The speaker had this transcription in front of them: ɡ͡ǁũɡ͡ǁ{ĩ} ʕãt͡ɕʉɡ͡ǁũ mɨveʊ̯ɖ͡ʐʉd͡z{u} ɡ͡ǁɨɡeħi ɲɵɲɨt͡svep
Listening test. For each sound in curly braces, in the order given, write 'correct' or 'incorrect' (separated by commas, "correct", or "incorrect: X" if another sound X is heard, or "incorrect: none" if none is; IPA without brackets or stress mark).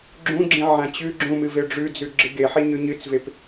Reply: correct, incorrect: ʉ